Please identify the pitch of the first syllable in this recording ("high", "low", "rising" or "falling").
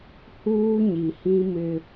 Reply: high